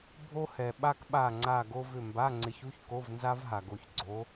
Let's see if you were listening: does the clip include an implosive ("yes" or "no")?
yes